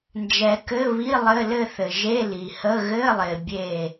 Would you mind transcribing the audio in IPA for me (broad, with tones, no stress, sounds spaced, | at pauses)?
n d͡ʒ ɛ˨ k ɘ˧˥˧ β i˧˥˧ lˠ ɘ˧˥˧ l ɘ˥˧ θ ɘ˨ ʒ e˧˥˧ l i˨ h ə˧˥˧ ɣ ɘ˧˥˧ lˠ ɪ˨ bʲ e˥˧